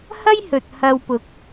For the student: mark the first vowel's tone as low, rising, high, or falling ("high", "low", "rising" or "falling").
high